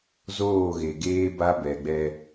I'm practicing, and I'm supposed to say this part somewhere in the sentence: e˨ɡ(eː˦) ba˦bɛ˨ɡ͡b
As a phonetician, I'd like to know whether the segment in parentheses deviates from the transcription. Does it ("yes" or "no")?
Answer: no